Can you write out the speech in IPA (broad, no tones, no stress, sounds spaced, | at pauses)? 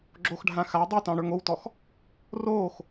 ɡ͡ǁ o x ɖʱ ã x a dˤ u t ɑ̃ ɽ ə˞ ŋ o w t ɔ x | r oː x